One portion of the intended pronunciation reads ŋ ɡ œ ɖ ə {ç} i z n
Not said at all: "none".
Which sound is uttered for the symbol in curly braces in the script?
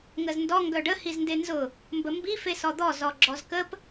h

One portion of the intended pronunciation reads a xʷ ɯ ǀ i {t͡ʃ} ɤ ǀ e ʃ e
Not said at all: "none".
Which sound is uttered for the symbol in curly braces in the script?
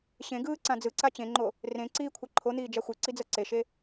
d͡z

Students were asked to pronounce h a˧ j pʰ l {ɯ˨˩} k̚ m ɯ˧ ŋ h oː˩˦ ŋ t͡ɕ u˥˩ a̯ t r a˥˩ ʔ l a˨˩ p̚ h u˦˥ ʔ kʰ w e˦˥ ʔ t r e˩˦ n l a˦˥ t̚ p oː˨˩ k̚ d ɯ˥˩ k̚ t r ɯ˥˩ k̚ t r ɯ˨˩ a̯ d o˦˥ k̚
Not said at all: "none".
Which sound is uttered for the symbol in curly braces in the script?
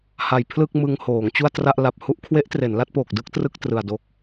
ɯ˥˩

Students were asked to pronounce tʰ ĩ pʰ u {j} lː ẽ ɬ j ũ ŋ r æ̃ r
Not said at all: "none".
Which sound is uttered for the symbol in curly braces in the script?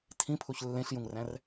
ç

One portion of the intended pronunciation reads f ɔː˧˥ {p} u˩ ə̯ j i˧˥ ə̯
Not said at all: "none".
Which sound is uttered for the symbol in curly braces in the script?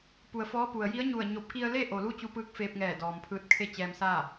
p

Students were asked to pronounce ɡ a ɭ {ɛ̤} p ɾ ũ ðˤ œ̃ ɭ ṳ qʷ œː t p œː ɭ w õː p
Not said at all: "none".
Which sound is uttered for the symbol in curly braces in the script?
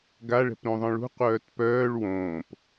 ɛ̤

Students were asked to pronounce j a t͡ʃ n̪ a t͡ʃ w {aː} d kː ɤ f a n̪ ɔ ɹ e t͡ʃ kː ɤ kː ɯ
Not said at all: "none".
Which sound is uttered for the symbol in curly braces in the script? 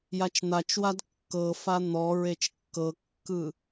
a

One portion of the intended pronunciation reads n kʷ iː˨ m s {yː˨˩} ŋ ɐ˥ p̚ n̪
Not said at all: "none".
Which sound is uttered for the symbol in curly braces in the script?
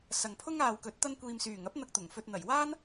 yː˨˩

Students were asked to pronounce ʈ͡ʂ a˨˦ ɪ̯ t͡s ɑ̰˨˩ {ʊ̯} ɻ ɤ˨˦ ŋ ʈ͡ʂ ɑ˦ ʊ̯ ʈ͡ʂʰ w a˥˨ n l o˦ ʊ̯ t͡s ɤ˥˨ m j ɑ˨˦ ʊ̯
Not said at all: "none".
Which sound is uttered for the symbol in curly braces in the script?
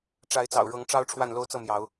ʊ̯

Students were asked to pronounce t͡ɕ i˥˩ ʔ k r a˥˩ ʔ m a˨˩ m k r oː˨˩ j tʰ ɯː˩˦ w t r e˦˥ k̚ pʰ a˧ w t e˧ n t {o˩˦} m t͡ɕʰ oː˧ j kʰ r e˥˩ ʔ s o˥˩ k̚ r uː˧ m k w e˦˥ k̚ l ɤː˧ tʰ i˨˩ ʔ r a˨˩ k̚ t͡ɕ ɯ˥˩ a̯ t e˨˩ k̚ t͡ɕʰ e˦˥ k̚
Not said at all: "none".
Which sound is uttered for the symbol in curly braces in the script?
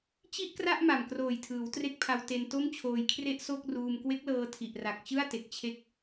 o˥˩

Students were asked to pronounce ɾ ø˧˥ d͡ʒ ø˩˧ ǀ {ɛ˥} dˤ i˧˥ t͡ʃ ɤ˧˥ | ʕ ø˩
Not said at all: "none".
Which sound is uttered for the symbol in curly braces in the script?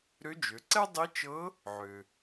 ɛ˥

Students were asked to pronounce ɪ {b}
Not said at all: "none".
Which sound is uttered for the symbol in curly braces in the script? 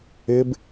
b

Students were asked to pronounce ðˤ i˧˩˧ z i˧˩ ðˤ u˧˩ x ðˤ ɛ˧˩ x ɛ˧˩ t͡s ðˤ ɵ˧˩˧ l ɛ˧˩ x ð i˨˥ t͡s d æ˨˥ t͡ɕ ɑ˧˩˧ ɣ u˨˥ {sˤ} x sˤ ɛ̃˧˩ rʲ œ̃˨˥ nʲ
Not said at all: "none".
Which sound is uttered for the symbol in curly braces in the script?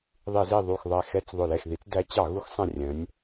none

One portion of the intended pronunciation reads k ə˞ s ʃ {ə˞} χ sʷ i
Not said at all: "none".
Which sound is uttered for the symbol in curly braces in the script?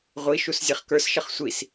ʌ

